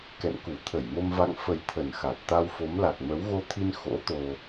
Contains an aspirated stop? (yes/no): yes